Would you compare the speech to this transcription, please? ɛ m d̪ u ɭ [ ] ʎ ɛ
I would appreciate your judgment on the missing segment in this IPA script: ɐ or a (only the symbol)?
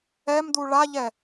a